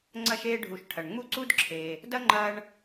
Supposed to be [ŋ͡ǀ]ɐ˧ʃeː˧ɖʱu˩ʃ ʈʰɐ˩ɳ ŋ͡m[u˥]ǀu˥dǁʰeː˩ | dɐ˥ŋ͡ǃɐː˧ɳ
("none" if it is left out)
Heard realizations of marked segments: ŋ͡ǀ, u˥

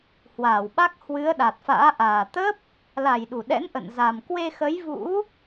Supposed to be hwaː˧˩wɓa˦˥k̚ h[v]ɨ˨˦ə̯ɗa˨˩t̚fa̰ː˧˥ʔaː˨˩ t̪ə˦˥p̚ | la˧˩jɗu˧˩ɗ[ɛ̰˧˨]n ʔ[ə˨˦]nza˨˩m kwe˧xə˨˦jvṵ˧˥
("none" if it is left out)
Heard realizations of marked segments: w, ɛ̰˧˥, ə̰˧˨

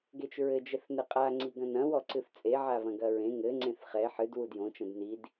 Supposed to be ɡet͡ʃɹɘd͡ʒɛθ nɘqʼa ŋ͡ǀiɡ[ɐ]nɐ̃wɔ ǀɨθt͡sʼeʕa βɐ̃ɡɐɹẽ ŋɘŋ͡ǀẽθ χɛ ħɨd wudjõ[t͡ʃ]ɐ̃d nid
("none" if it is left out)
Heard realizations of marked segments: ɐ̃, t͡ʃ

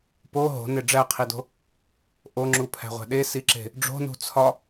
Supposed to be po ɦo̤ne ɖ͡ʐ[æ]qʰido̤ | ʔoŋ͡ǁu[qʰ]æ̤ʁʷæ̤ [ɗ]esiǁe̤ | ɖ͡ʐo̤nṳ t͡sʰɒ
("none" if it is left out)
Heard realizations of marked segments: æ, pʰ, ɗ

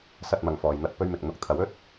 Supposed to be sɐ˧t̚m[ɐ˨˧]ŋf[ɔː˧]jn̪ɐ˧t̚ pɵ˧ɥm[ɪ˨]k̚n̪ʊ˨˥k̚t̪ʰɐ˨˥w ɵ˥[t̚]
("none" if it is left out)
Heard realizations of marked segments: ɐ˨, ɔː˨, ɪ˨, t̚

